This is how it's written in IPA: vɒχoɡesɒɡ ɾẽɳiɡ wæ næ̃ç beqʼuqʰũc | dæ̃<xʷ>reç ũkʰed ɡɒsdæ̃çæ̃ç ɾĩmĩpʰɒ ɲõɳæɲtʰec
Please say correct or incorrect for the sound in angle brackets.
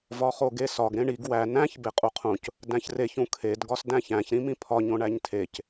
incorrect